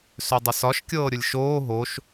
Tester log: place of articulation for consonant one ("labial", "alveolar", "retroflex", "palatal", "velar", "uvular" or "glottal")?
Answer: alveolar